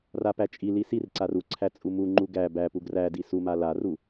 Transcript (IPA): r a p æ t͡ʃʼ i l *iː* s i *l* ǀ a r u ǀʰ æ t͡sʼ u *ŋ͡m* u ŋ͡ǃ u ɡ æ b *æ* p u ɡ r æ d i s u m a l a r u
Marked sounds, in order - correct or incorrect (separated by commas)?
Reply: incorrect, incorrect, incorrect, correct